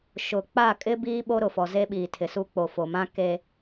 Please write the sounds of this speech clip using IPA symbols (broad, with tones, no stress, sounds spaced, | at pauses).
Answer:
ʃ ʊ˨ k͡p a˦˨ kʼ ɪ˦ b iː˦ ɓ o˦ ɾ ʊ˨ f ɔ˨ z e˦ ɓ iː˨ tʰ ɪ˨ s u˦ k͡p o˨ f o˨ m ã˦ k e˦